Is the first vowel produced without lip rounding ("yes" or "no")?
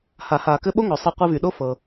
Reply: yes